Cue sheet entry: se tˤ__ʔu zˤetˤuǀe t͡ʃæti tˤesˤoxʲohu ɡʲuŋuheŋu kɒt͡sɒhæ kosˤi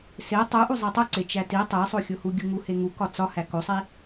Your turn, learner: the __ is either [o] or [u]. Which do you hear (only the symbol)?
u